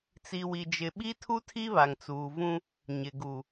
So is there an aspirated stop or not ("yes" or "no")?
yes